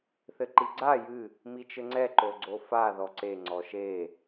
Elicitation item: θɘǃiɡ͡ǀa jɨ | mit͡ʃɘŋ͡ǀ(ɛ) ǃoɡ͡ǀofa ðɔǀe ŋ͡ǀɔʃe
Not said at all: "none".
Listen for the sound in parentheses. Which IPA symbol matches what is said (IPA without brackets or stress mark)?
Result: ɛ